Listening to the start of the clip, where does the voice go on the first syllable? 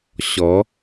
rising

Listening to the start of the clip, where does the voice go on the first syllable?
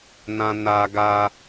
low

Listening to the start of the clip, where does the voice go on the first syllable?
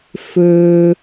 low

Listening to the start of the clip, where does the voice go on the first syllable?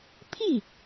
falling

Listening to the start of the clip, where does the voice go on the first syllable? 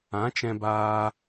rising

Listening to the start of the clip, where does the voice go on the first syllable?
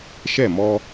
falling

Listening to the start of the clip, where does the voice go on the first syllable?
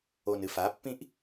low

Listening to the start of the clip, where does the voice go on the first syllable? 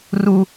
high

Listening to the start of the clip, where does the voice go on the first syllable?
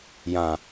low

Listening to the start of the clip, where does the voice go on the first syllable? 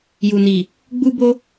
low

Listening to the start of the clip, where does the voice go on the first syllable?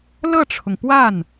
falling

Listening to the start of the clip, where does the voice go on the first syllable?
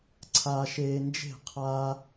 high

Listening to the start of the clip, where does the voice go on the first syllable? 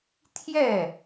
falling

